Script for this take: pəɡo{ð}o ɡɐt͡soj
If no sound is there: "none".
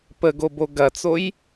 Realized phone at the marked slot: b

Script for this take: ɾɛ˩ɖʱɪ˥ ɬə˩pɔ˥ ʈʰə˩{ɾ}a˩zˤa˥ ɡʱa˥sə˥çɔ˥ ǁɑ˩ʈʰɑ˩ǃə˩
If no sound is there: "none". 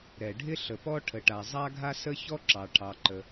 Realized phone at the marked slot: ʈ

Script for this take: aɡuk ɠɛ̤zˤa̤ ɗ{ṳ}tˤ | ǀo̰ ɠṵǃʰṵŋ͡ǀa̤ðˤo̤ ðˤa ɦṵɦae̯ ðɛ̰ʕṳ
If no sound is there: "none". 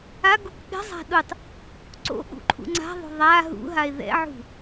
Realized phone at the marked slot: u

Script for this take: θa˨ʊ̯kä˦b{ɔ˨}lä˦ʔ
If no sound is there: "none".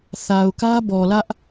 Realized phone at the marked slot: ɔ˨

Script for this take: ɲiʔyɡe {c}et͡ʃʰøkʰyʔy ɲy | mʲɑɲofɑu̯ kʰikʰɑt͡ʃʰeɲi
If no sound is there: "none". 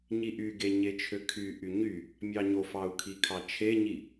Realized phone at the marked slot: ɲ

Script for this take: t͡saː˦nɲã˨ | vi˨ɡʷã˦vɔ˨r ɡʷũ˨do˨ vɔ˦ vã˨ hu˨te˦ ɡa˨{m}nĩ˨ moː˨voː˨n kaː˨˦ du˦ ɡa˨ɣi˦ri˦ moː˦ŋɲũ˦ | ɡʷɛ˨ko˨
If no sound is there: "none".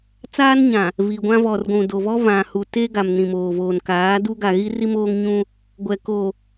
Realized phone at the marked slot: m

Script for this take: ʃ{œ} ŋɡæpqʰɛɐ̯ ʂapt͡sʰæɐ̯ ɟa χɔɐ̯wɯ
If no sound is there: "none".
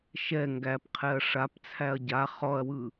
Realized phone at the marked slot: ɛ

